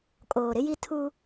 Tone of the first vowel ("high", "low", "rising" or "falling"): low